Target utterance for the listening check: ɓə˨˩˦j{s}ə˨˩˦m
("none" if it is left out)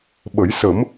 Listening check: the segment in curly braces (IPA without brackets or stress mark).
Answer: s